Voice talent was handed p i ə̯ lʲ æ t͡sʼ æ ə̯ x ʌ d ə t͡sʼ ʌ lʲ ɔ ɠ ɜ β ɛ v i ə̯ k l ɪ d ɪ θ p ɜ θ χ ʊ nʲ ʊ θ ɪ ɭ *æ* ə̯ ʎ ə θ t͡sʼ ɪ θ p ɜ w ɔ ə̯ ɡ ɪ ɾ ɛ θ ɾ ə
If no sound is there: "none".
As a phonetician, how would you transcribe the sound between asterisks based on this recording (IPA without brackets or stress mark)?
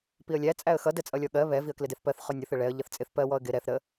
ɛ